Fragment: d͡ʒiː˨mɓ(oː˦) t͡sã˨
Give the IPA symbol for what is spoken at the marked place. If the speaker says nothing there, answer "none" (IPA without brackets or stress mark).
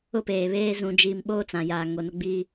oː˦